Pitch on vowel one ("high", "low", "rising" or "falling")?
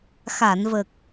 low